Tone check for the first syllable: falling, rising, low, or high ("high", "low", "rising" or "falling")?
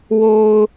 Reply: low